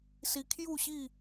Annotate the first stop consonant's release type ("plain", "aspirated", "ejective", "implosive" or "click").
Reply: aspirated